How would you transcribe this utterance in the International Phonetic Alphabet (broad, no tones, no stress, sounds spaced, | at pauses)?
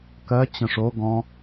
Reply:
k ɜ t͡ɕ ə̃ ʂ o ɡ ɔ̃